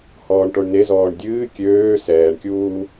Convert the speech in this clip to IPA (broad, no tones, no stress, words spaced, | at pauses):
hɔːɳʈoɳnezɔːɳ dʲɨː kʲøː sɛːɳkʲuː